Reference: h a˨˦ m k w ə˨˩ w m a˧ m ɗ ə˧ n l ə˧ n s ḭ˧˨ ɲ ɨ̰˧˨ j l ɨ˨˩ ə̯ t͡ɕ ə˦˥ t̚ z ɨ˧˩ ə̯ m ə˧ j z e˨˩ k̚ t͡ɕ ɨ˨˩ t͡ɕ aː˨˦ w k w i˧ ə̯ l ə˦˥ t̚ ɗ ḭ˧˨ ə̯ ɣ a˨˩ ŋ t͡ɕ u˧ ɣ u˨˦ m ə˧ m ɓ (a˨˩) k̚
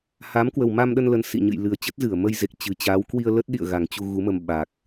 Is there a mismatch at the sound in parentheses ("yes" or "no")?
yes